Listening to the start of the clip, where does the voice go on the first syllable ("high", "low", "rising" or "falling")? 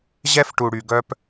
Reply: high